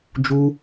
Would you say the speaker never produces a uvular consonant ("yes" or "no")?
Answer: yes